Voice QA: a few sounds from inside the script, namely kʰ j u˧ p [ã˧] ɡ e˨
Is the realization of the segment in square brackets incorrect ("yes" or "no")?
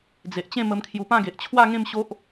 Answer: yes